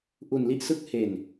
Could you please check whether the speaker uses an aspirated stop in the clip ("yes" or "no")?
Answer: no